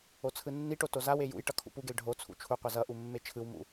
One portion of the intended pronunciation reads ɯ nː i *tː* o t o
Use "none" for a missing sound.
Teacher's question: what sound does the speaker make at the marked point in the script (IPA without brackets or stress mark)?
ʈ